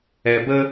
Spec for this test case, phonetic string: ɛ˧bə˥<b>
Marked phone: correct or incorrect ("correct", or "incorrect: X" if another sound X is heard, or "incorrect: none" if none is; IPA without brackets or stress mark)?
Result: incorrect: none